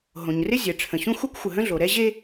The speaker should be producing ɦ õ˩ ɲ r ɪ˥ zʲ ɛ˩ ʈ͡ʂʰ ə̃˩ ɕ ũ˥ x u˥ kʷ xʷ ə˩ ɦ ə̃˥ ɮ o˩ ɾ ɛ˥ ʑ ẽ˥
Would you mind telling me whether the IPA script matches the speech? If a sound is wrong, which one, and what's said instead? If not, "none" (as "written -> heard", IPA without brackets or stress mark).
ẽ˥ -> e˥